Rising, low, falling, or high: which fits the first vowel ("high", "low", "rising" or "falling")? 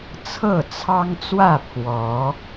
falling